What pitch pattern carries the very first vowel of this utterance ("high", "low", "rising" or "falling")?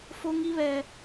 high